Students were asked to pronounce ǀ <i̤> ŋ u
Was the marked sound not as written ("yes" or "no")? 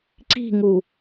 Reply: no